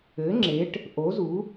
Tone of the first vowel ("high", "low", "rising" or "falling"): rising